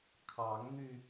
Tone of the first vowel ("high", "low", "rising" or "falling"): rising